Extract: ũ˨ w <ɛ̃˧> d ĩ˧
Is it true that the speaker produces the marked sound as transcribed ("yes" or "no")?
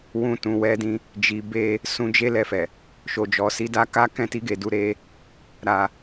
no